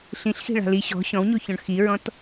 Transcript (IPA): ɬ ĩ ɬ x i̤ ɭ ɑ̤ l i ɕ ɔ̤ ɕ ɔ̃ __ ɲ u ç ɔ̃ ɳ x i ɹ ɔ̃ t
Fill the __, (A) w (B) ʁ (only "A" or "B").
A